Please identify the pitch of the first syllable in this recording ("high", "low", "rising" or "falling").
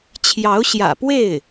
rising